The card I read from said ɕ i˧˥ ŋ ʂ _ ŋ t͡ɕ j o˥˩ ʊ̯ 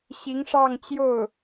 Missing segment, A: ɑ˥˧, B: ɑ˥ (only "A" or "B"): A